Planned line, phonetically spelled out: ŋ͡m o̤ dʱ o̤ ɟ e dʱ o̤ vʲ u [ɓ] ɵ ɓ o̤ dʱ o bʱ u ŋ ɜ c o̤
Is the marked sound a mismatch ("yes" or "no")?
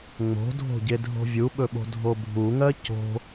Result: no